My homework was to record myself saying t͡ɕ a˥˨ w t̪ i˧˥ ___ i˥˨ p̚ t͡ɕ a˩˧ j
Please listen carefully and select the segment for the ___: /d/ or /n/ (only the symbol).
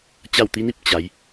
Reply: n